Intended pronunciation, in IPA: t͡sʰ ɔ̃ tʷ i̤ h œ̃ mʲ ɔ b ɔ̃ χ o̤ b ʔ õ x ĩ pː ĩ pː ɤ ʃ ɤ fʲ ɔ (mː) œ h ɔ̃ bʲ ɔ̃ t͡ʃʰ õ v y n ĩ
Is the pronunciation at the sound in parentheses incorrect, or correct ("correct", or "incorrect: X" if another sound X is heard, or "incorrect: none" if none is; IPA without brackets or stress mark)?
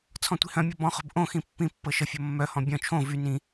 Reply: correct